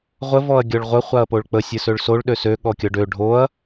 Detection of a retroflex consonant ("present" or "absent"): present